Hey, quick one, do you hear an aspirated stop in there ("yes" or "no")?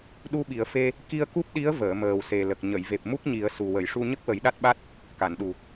no